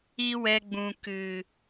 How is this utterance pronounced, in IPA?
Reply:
i˦ w ɛ˧ ɡ͡b ũ˨ k ɨ˨

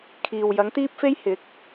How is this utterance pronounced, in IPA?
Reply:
kʰ iː˨ w j ɐ˨˥ ŋ t̪ iː˥ p̚ f e˥ j h ɪ˨˥ k̚

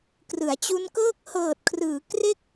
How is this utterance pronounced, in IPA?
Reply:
k r ɯ˩˦ a̯ t͡ɕ u˦˥ n k ɤː˥˩ k̚ h ɤː˨˩ t̚ kʰ r ɯː˩˦ k r e˥˩ k̚

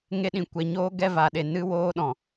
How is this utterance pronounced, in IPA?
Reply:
ŋ e˧ ɗ ĩ˨ kʷ ɛ˨ ɲ oː˦ ɡ ɛ˦ v a˨ ɗ e˨ n ɨ˦ w oː˦ ɗ ɔ̃˨

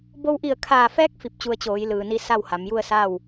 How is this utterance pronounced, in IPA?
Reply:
b o˧ w ʔ i˧˩ ə̯ kʰ aː˧˩ f ɛː˧˥ k̚ f i˧ p̚ t͡ɕ u˧ ə̯ t͡ɕ oː˩˧ j l ɯː˩ n i˧ s a˥˨ w h a˩˧ m j u˥˨ ə̯ s aː˥˨ w

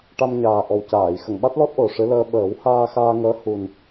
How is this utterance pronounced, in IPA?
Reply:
ʈ a˧ m ɲ aː˨˩ ʔ ɔ˨˩ w c aː˨˩˨ j x ə˨˩˨ ŋ ɓ a˦˥ t̚ l ɔ˦˥ t̚ ʔ o˨˩ ʂ ɨ˧˥ l əː˧ ɓ əː˨˩˦ w h aː˧ x aː˧ ŋ əː˧˥ h u˨˩ n

